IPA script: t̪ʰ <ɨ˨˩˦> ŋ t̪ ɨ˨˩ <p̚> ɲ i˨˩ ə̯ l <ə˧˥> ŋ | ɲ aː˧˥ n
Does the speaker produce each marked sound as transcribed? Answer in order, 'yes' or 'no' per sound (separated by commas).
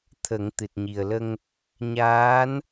no, no, no